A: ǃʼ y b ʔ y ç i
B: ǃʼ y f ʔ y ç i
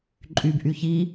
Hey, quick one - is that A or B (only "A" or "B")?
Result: A